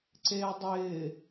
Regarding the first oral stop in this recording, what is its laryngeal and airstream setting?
click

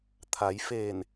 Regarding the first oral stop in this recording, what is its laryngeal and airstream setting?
aspirated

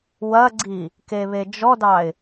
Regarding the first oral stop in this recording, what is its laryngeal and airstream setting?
click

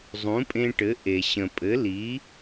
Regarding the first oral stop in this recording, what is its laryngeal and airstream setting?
ejective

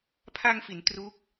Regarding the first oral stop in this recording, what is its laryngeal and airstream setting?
aspirated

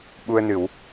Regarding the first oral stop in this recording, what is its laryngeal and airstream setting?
implosive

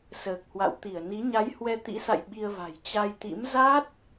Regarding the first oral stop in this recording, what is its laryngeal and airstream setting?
plain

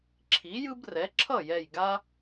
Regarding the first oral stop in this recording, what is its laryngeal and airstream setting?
click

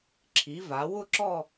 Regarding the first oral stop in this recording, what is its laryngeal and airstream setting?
click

